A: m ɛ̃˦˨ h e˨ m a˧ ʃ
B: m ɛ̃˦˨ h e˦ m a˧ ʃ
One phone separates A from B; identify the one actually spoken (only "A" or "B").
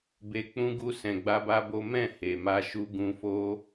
A